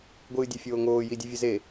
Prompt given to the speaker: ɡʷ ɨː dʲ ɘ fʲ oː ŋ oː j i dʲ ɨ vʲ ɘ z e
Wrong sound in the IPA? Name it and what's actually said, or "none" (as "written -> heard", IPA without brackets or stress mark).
none